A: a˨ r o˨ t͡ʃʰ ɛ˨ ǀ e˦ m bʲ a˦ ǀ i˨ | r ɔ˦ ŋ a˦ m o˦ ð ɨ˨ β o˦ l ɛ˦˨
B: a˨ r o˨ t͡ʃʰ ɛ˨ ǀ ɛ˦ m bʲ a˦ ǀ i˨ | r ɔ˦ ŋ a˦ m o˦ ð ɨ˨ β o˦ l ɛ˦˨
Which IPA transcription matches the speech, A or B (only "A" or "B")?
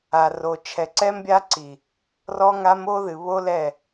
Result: B